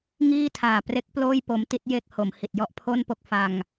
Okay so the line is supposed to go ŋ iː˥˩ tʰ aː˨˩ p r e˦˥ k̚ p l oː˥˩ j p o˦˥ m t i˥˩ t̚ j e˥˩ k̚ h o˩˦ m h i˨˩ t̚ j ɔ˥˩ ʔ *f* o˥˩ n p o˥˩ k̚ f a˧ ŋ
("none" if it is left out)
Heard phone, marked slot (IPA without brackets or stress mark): pʰ